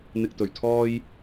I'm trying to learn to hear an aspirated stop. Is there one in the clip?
yes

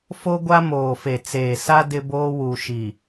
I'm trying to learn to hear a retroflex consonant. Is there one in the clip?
no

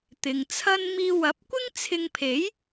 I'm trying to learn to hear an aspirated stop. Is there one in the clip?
yes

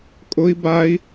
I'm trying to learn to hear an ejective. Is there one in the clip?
yes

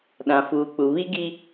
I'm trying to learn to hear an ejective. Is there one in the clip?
no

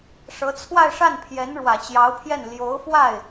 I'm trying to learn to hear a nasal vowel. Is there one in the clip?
no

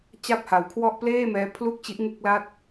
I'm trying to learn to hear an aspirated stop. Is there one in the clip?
yes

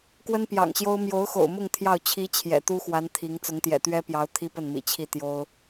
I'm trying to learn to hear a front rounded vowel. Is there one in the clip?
no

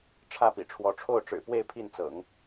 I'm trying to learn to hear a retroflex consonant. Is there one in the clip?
yes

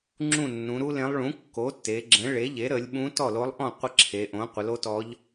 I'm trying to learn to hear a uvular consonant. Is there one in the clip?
yes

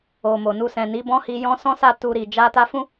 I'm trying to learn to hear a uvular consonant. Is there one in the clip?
no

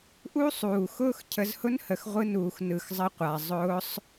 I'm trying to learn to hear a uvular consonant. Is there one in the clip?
yes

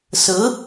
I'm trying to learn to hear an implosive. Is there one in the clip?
no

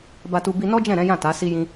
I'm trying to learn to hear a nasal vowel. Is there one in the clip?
yes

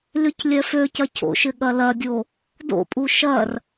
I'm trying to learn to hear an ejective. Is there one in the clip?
yes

